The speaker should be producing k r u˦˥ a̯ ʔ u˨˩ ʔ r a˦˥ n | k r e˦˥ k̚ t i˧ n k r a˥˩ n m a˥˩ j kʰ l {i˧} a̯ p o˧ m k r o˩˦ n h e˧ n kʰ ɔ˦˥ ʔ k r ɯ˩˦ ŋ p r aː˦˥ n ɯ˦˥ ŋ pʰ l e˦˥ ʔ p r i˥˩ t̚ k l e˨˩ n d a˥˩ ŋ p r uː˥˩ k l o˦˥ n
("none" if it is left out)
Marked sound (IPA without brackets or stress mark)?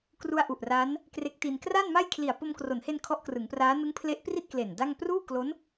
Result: i˨˩